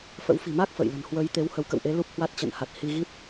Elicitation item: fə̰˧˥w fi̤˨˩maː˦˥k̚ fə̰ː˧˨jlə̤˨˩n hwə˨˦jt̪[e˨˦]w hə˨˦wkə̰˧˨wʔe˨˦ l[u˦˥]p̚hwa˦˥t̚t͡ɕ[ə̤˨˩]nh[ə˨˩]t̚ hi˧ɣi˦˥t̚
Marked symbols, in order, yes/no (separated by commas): yes, yes, no, no